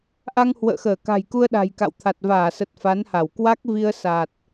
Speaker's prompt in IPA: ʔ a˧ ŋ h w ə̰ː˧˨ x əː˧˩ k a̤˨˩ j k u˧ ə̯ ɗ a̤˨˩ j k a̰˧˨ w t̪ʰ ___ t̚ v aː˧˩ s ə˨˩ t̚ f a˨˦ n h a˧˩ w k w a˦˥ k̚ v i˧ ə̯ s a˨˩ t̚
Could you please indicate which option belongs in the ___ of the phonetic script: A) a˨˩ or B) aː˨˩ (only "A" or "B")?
A